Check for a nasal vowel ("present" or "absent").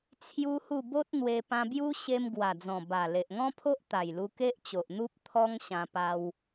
present